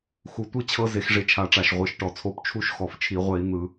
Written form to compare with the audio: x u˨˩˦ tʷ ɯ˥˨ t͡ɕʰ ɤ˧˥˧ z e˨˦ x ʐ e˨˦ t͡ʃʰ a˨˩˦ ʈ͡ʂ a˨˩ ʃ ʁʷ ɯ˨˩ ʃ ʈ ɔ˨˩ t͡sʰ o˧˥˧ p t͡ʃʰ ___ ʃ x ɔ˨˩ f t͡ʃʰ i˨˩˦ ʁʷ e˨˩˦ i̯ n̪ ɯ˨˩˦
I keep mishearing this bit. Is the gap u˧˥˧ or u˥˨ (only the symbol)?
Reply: u˥˨